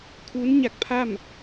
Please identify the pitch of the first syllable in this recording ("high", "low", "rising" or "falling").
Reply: rising